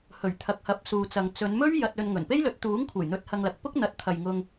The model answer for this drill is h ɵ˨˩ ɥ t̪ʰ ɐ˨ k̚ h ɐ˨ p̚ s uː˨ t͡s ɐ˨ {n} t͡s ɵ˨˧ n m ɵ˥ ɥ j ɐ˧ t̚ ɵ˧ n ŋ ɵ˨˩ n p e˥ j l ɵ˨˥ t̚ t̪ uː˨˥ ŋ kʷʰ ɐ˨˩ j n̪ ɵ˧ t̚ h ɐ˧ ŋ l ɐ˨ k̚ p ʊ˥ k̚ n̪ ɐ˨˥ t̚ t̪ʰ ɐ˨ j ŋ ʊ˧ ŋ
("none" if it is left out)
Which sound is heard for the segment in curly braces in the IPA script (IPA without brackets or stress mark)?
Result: ŋ